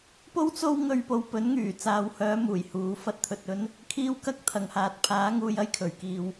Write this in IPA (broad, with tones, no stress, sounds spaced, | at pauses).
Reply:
p o˥ w t͡s o˥ w ŋ ɵ˧ ɥ p o˨ w p ɵ˨˥ n ŋ yː˨˩ t͡s aː˨ w h œː˨˧ m uː˨˩ j h uː˨˧ f ɐ˥ t̚ t̪ʰ ɵ˧ t̚ ɵ˥ n | kʰ iː˥ w k ɐ˥ k̚ t̪ʰ ɐ˨˩ ŋ h aː˨ t̚ pʰ aː˨˥ ŋ uː˧ j ɐ˥ j kʰ ɵ˨˩ ɥ k iː˨ w